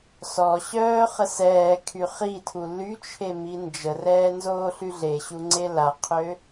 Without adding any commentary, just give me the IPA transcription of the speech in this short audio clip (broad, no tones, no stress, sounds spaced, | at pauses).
s ɔ ɕ œː χ ə s ɛː kʰ y χ i tʰ u l y t͡ʃʰ e m i n d͡ʒ ə r ɛː n z oː ɬ y ɮ e ɕ u ŋ͡ǀ e l a qʰ ø